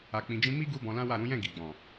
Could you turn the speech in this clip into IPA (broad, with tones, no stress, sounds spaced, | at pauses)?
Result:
a˨ k͡p ĩ˨ d͡ʒ ĩ˧ m i˦ ɡ u˦ b ɔ̃˧ l ã˦ w a˦˨ ɾ ũ˨˦ j ɛ̃˦˨ ɡ i˨ ɡ͡b ɔ̃˨